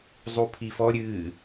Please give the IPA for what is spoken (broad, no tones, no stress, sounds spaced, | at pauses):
zˤ u pʰ i f ɔ ɾʲ ɨ